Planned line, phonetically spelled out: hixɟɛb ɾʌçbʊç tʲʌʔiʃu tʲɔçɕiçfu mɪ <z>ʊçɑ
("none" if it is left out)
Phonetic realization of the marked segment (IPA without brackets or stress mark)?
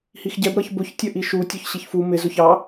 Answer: z